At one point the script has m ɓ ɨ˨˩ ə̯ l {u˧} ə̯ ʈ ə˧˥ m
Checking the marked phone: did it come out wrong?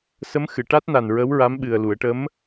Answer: yes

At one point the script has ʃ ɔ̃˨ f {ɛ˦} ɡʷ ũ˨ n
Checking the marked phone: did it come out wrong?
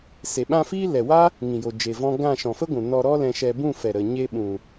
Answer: yes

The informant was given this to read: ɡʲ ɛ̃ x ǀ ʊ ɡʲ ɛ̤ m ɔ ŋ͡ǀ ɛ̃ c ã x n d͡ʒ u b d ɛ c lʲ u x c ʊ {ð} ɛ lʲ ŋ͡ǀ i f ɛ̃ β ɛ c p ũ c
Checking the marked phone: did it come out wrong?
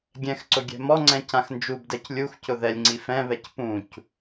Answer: no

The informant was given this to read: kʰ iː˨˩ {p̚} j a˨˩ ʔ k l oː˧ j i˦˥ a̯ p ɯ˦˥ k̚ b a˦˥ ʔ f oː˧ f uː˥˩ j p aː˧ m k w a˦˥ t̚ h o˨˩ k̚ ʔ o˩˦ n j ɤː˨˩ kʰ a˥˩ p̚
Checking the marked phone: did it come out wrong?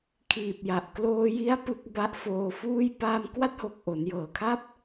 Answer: no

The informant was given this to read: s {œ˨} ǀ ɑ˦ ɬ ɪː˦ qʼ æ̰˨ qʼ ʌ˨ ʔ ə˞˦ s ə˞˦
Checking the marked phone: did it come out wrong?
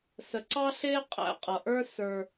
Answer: yes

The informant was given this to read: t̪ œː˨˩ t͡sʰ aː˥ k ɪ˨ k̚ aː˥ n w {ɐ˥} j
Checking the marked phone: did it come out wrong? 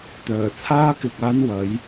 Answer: yes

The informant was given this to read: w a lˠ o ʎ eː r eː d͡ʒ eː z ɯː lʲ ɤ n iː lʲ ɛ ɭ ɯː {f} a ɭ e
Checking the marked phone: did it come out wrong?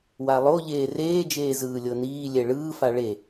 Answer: no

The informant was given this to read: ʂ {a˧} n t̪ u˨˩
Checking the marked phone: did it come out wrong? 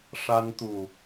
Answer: no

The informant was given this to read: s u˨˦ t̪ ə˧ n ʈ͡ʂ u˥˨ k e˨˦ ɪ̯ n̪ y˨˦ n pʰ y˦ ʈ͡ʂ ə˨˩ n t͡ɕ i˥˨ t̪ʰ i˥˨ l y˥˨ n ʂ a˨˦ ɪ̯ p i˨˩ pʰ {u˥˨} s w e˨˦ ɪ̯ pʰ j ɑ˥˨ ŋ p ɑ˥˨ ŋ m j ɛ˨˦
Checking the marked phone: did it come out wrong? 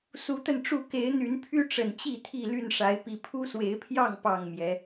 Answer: yes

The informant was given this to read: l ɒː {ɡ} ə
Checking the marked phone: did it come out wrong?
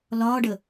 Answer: yes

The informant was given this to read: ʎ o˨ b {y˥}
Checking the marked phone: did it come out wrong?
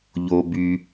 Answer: yes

